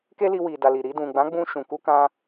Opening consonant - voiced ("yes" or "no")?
no